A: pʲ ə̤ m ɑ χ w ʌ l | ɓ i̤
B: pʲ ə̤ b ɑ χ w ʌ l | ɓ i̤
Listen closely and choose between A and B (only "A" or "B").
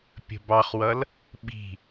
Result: B